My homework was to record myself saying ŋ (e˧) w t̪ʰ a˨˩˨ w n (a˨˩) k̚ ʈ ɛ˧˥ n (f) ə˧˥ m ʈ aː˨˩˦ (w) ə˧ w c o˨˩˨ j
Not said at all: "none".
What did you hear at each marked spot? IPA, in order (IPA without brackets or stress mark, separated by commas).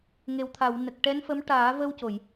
e˨˩, ə˨˩, f, v